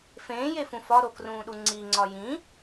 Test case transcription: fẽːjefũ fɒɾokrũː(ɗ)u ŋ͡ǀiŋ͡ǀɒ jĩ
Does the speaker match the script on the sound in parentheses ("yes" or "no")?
yes